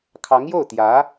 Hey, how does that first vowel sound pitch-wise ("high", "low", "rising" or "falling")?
rising